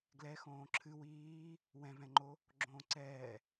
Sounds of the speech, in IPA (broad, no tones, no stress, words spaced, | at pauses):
ɡlɛ xõːǁʰɨ wiː | wɛ̃vɛ̃ŋ͡ǃo | ɡ͡ǁõːǀɛː